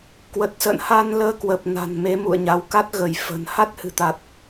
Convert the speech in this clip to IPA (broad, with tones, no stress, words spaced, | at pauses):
kwə˨˩t̚sə̰ː˧˨n ha˧nləː˧kwə˨˩p̚ na̤˨˩nme˨˦ mṵ˧˨ə̯ɲa˨˦w ka˦˥t̚ɣə˧˩jfə̤˨˩n ha˦˥t̚ hɨ̤˨˩t̪a˨˩t̚